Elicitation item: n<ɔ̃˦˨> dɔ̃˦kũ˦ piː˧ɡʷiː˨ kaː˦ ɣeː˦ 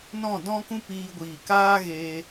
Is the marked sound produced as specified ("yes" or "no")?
yes